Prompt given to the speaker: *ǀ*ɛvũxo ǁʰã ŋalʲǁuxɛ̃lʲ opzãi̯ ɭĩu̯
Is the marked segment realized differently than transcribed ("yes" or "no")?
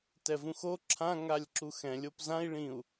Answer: yes